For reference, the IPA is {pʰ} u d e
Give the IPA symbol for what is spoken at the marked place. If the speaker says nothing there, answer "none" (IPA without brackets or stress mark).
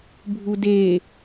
bʱ